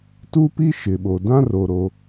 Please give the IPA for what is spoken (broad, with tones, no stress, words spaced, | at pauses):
tu˦pi˦ ʃɪ˨ɓo˨ dã˦ro˨ ɾo˦